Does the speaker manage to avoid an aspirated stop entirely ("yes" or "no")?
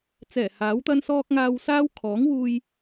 no